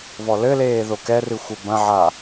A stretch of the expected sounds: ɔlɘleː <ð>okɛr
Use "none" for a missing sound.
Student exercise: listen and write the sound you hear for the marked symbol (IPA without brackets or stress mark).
ð